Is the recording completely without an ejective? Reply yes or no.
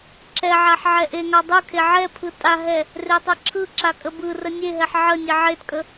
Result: no